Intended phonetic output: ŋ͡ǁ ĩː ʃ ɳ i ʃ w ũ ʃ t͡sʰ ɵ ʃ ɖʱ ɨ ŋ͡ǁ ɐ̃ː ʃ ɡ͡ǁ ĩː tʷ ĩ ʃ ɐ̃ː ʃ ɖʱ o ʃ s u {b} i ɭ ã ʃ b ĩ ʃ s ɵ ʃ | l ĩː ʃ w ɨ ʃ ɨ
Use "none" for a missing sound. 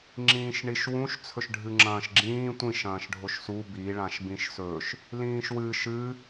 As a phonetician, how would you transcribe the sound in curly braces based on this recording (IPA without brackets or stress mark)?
b